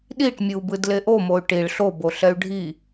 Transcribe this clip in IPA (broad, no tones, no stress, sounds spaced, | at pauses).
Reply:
ɗ i ʈ mʲ ɯ u̯ b ɯ d l e ʔ o m o y̯ ʈ i ɭ ɬ o b o ɬ ɛ y̯ ɖʱ i